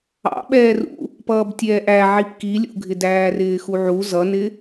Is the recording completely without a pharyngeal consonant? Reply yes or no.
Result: no